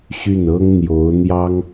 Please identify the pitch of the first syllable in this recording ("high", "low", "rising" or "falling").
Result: falling